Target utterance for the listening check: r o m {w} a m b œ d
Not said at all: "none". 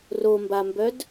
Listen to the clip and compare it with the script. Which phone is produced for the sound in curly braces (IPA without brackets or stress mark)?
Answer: b